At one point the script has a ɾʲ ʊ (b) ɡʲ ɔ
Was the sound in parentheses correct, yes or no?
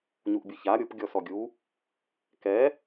no